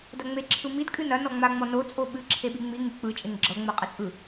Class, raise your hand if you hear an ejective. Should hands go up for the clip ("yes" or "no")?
yes